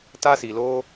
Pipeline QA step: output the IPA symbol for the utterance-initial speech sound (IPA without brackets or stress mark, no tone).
t